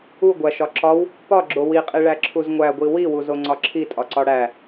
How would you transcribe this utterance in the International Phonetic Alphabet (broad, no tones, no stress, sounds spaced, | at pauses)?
u ɡʷ æ ʃ ɒ ǁ ɒ w | p ɒ ɡ͡ǁ o w i qʼ i ɭ æ ǁʰ u z ŋʷ æ ɡʷ i w i w u z o ŋ͡ǀ ɒ ǁʰ i tʼ ɒ ǀ ɒ ɽ æ